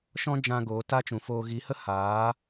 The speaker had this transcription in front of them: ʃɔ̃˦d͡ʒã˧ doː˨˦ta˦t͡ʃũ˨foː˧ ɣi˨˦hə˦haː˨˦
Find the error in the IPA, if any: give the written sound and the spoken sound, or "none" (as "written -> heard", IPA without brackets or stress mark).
d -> ɡ